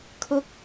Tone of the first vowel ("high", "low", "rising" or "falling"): rising